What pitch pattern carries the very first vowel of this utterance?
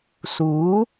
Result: rising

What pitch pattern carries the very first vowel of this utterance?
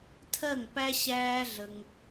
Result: falling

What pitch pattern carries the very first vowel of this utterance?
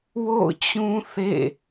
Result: falling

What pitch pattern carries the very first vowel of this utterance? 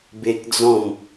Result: high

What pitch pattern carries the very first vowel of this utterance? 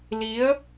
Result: rising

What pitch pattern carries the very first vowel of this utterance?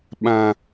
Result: high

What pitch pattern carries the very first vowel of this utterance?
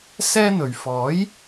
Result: high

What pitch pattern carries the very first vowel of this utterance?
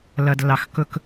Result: low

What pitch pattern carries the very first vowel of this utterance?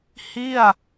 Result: falling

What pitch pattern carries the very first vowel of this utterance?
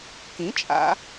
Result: rising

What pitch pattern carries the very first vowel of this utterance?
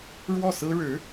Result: falling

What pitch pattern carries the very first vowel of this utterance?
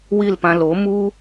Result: falling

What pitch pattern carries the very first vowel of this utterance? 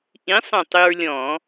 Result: rising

